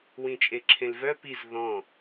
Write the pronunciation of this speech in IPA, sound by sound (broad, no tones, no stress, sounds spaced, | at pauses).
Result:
w ĩ t͡ʃʼ e ǁʰ ẽ l v œ p i z ð ɔ̃